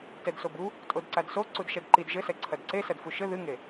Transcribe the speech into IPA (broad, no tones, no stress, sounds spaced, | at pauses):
t ɛ d s o b u | tʼ o d ǀ a d s o ǀ u d ʃ ɛ d ǃ i d ʒ ɘ s ɛ ǀʰ ɐ d ǀ e s ɐ d f u ʃ ɘ ð ɨ ŋ e